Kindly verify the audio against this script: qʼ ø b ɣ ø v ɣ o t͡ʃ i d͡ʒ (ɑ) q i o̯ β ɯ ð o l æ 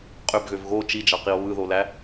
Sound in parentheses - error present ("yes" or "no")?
no